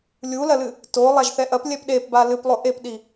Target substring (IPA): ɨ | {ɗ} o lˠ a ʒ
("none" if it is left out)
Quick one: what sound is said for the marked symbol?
t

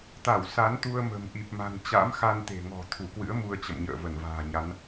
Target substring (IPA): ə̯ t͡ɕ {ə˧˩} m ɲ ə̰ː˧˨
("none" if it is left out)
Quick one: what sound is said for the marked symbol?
ə̰˧˨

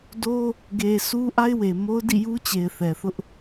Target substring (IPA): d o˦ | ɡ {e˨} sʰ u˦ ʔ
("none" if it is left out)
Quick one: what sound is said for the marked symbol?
e˨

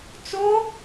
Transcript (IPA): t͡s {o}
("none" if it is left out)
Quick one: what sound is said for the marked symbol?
o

